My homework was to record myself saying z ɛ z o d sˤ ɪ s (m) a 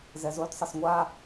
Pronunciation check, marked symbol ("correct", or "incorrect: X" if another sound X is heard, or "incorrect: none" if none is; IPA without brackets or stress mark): incorrect: ŋʷ